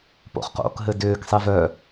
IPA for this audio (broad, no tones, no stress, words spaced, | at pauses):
po̰χqo̰k ɦɘdʏːksˤi vœ